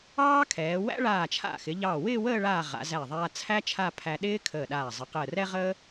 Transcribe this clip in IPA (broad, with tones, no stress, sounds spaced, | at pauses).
ɑː˥ kʰ ɛː˩˧ w æ̰˥ ɭ aː˧˩ t͡ʃʰ a̰˧˩ x ɪ˩˧ ʎ ɑ˧˩ w ɪː˥˧ w əː˥˧ ɭ aː˧˩ ʁ a̰˩˧ z æ˧˩ ðˤ aː˧ t͡sʰ æ˥ t͡ʃʰ a˥˧ pʰ æ˧ ɗ ɪː˥ kʰ əː˧˩ ɗ aː˧˩ zˤ ə˩˧ q əː˧˩ r ɛ˥ ʁ əː˥